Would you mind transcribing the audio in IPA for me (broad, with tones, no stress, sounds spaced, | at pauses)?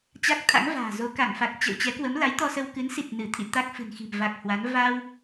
t͡ɕ a˦˥ k̚ t̪ʰ a̰˧˥ ŋ v a̤ː˨˩ z o˧ k a˧˩ ŋ f a˨˩ k̚ t͡ɕ ə̰˧˨ w t͡ɕ ɛ˨˦ k w ə˨˦ m l a˨˦ j t̪ ɔ˧ s ə˧ w k ɨ˨˦ n s i˨˩ t̚ n ɨ˧˩ t̪ʰ ḭ˧˨ t̪ a˦˥ k̚ f ɨ̤˨˩ n x i̤˨˩ m v a˨˩ k̚ h w a˨˦ n v a˧ w